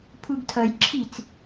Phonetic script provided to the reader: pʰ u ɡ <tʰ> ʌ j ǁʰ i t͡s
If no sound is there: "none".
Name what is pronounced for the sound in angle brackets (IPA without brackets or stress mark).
tʰ